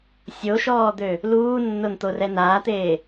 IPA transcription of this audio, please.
sʲ o ʃ ɔː d̪ ø | l uː nː o n t̪ o r ɛ n aː t̪ eː

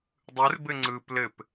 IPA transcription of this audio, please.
dˤ ɯ r b ɘ ŋ͡ǀ ɯ p l ɘ p

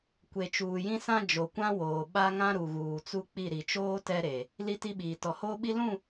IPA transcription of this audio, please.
kʷ e˨ t͡ʃ uː˨ j ĩ˦ s ã˦ d͡ʒ o˨ kʷ ã˦ w oː˨ ɓ a˦ ŋ ã˦ ɾ u˨ ɣ uː˨ t͡s u˦ k͡p i˦˨ ɾ i˨ t͡ʃ oː˦ t ɛ˦ ɾ e˨ | l i˦ t i˦ ɓ iː˨ t ɔ˨ h oː˦ ɓ i˦ l ũ˦˨

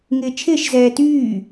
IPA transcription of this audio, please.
ŋ ɪː t͡ʃʰ ɪː ʃ z ɛː t yː

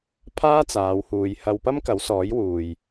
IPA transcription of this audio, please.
pʰ aː˥ t͡s aː˨˧ w h uː˨ j h ɐ˧ w p ɐ˥ m k ɐ˨˥ w s ɔː˨˥ j w uː˨ j

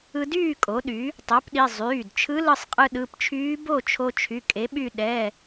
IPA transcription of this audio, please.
ɯ˧ d yː˥˨ kʼ o˩˥ ɗ y˩˥ | tˤ o˩˥ p ɗ i˩˧˩ zˤ yː˩˧˩ d t͡ʃʰ ɯ˧˥ l ɯ˧ sˤ qʼ ɯ˧ ɗ ɯ˩˧˩ p t͡ʃʰ yː˧˥ b o˥˨ t͡ʃʰ o˧ t͡ʃʰ y˩˧˩ kʼ e˩˥ ɓ y˥˨ ɗ ɛ˩˧˩

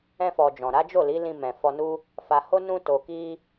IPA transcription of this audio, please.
ɛ̃˧ f ɔ˨ d͡ʒ ɔ̃˨ ɾ a˨˦ d͡ʒ o˦˨ l i˨˦ l ĩ˧ m ɛ̃˨ f ɔ˧ n u˦ | f a˨ h o˧ n ũ˧ t o˨ k i˧

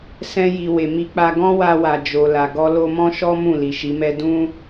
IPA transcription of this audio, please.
s ɛ̃˧ j i˨ w e˨ m i˧ k͡p a˧ ɡ ɔ̃˦ w a˧ w a˨ d͡ʒ o˨ l a˨ ɡ ɔ˧ l o˧ m ɔ̃˦ ʃ ɔ˦ m ũ˦˨ l i˨ ʃ i˨˦ m ɛ˦ d ũ˦

